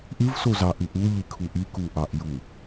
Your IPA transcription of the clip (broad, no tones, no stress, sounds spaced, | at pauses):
ʔ ɨ v s o z ɑ ʔ ɨ ʔ u ʎ i kʰ u ʔ i k u ʔ ɑ ʔ j u